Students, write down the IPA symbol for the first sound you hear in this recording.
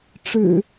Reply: ʈ͡ʂ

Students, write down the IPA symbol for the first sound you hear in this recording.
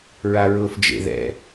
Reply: ɹ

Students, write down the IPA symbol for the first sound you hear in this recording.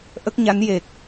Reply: ʔ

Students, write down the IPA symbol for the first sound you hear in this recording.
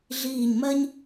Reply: ɮ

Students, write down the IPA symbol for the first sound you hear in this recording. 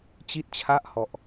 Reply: t͡ɕ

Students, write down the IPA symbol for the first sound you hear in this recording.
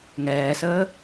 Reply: ŋ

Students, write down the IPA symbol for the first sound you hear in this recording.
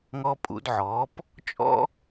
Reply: ŋ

